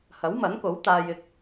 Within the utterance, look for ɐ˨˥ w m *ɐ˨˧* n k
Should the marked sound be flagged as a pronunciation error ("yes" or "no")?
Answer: yes